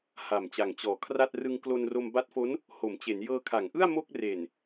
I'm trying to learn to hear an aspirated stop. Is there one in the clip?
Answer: yes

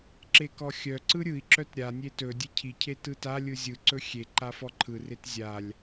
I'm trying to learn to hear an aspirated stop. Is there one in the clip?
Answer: yes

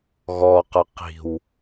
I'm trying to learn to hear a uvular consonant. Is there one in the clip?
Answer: yes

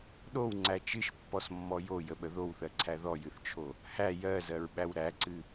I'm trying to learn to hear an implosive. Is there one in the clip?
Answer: yes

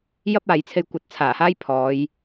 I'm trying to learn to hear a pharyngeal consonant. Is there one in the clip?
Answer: no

